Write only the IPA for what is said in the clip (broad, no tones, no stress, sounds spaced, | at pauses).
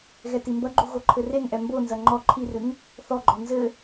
ɣ ɛ t i m b ɐ ɡ͡ǃ u ɣ o ǃʰ ɘ r e ŋ ʔ ɛ m b o n z ɐ ŋ͡ǃ ɔ ǃʰ i r ɨ ŋ | θ ɔ ɡ͡ǃ ɔ n z ɘ